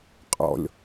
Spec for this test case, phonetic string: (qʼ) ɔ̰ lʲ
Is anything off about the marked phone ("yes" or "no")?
no